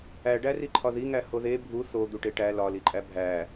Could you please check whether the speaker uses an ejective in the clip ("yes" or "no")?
yes